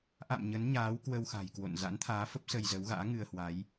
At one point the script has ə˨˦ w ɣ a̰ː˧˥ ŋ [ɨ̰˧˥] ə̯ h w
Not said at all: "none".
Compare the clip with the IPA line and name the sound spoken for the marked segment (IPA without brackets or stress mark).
ɨ˧